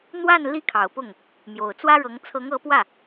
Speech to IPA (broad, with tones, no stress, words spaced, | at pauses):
n̪wa˥˩n li˥kʰɑ˨˩ʊ̯pʊ˥˩ŋ | mjo˨˩ʊ̯t͡swä˥ɻɤ˧˥ŋ t͡sʰɤ˧˥ŋɤ˧˥pwä˥˩